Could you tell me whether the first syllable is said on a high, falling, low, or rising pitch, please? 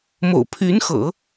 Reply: low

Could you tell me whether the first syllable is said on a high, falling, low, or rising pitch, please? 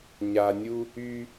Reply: low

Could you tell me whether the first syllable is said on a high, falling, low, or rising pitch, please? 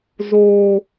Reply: low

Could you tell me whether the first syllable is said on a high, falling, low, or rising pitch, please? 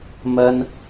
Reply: high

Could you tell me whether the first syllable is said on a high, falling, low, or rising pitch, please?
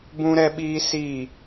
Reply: high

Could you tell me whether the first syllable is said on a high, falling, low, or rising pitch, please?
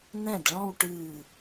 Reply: falling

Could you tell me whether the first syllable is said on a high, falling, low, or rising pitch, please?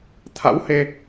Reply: rising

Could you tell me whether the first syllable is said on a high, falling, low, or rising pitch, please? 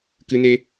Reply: high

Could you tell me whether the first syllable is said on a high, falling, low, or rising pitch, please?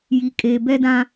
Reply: low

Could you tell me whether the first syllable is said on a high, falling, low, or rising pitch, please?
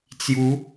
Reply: rising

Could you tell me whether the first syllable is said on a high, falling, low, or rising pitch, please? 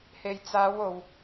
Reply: low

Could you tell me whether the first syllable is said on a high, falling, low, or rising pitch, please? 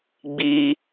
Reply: high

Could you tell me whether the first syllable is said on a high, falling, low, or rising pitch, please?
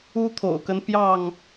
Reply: high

